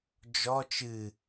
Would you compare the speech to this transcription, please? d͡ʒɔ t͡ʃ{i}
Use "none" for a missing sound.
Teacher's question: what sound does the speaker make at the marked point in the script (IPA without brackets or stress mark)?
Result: ɨ